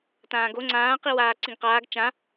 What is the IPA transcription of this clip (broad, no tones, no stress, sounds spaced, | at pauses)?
t ãː ɡ o ŋ͡ǀ ãː q i w aː ǀ ĩ ɡ q aː ɡ t͡ʃ ã